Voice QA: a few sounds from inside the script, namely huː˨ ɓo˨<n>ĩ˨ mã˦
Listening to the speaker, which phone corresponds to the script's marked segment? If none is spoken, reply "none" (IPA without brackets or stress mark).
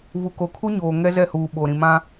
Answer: ɾ